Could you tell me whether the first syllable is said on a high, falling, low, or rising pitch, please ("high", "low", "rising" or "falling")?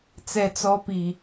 low